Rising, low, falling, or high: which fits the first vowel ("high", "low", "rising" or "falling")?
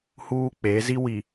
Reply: high